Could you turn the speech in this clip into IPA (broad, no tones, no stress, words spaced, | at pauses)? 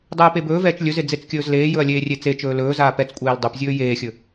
dˤɛːpebɵːvɛːt͡ʃ lʲɵze d͡zet͡skʲɵːzleːjɵɐ̯ lʲeːrʲet͡set͡ʃɵː lɵːzaː pɛt͡skʷʼeːl dˤɵpzʲɵː jeːxʲɵ